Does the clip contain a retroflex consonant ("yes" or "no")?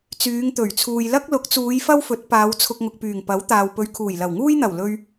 no